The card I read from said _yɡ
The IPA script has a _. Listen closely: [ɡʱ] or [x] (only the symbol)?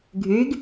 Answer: ɡʱ